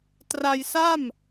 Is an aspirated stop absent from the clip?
yes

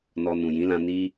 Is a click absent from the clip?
yes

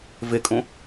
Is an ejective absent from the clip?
no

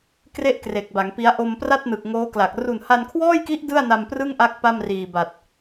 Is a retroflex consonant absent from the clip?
yes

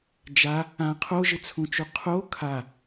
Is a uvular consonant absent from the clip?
no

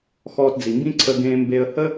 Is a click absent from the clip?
no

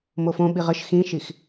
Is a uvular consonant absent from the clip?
no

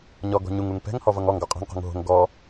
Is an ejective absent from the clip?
no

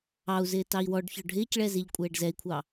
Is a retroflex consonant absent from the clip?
no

